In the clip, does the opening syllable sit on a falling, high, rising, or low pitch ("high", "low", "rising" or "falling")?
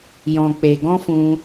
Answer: low